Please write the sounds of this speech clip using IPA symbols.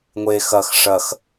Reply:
ŋʷ e x ɐ x ʂ ɐ x

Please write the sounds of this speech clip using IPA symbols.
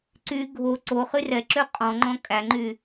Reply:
ǀ y ɡʱ o ǀ o χ y r ɛ ǁ ø qʼ ɔ̃ ŋ͡ǃ ɔ̃ kʼ æ ŋ͡ǃ y

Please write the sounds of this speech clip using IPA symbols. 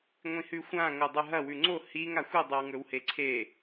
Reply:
ŋʷ ĩ h ʉ xʷ ã ŋ o dˤ ʉ ɦ ɐ w ʉ ŋ͡ǀ o h i ŋ a xʷ ɨ dˤ ɨ w ŋ ɵ w h e ǀʰ e

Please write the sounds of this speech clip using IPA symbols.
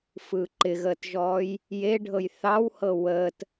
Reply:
f ɯː ǃ ɪ ɣ əː t ʒ ɔː j | j e ɖʱ ɤ j θ ɑ w h ɤ w əː t

